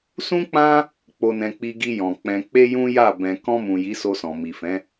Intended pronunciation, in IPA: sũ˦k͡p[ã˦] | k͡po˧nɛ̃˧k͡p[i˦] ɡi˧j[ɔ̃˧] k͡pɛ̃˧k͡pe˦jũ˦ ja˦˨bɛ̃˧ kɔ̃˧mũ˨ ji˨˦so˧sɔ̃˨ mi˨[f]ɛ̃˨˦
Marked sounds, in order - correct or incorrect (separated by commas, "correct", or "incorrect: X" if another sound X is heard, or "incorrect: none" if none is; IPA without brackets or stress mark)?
correct, incorrect: i˧, incorrect: ɔ̃˨, correct